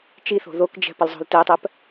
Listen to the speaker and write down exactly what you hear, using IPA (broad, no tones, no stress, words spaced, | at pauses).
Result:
t͡ʃiθo̤ ðokd͡ʒɛ̤ pəlzˤo̤ltɛtˤɜp